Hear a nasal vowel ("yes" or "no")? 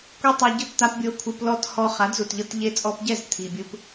no